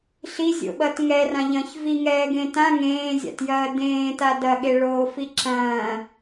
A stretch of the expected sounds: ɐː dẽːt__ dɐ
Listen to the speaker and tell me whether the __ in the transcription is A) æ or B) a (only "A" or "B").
B